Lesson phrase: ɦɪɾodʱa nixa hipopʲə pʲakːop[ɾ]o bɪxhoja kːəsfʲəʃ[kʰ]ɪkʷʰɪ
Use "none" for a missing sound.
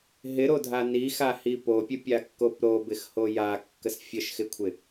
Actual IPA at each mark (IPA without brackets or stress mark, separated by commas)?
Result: ɾ, x